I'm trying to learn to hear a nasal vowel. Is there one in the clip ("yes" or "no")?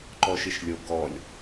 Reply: no